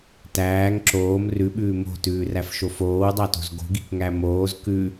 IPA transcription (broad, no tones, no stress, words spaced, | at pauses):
tæːŋ ǁoːm rʉɓʉː mo̤tʉːræfʃo foːwdˤɑto̤z ɡo̤ɡikŋæ moːz kʉ